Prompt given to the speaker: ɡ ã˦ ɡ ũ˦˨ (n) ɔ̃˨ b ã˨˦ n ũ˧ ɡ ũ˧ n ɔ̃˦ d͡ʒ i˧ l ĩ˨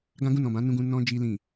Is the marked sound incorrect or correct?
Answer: correct